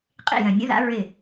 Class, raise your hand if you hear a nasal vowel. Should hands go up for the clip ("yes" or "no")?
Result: yes